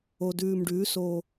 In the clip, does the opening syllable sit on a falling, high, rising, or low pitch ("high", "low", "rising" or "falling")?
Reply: low